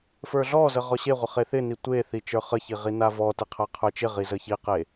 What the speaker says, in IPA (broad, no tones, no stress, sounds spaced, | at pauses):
f ə˞ ɮ ɔ z ə ʁ ɔ ɕ e ʁʷ ə χ e θ ɪ n i tʷ e θ i t͡ʃ ə˞ χ ə ç i ʁ i n a v ɔ t ɪ qʰ a qʰ ə˞ t͡ʃ ɪ ʁ i z ə ç i q e